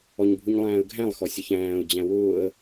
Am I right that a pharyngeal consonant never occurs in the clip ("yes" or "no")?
yes